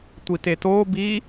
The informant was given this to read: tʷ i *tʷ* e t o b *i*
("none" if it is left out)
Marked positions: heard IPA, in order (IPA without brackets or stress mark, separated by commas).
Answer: t, i